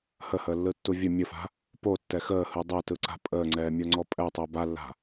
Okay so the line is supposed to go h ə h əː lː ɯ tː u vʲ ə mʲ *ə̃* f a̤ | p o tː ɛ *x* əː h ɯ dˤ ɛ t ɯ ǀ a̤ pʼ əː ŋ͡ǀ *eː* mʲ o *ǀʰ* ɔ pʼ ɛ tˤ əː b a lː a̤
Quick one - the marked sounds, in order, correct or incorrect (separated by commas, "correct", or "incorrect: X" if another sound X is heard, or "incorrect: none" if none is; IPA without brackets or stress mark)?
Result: incorrect: ə, correct, incorrect: ɛː, incorrect: ŋ͡ǀ